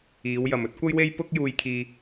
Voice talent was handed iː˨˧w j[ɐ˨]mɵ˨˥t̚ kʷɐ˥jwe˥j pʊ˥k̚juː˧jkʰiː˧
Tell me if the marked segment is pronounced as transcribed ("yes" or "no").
yes